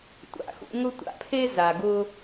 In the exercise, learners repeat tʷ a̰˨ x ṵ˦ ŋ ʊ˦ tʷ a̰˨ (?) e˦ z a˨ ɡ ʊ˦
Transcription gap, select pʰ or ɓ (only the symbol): pʰ